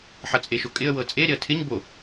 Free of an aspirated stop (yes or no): no